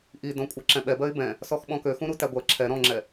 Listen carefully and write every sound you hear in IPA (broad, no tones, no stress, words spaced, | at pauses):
ʔidɔ̃ kʷʼɜǁɛ̃ɓɛbɜɪ̯ bɛ̃ | sɔxɓɔ̃køxũ ɾutæɡʷɜ ǁʰɛ ɾɔ̃ŋ͡ǁɛ